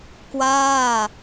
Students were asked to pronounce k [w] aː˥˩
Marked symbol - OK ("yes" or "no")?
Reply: yes